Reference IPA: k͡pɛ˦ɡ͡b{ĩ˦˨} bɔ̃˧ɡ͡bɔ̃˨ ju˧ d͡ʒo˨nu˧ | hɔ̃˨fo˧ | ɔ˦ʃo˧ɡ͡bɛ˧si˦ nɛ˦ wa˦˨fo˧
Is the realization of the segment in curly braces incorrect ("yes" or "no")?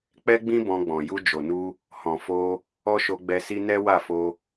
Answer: yes